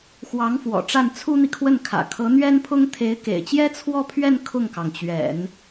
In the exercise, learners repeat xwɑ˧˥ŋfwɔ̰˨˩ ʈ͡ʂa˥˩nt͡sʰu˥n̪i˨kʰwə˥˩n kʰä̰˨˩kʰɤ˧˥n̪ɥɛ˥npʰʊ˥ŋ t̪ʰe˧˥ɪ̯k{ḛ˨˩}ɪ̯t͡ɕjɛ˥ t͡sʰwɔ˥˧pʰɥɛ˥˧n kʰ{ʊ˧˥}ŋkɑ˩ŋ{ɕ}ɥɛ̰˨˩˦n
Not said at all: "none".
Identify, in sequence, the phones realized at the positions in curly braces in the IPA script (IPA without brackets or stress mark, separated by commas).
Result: ḛ˨˩, ʊ˥˩, t͡ɕ